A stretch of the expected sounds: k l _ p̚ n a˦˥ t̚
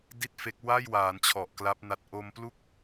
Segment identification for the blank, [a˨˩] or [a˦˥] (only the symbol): a˦˥